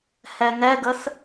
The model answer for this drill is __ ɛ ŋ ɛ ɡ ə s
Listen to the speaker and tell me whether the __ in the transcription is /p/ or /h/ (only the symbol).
h